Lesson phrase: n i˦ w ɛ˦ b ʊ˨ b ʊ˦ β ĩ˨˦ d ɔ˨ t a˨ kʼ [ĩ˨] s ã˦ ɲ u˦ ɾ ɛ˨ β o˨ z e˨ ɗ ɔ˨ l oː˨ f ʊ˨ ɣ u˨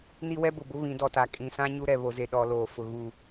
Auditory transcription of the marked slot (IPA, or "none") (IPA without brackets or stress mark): ĩ˨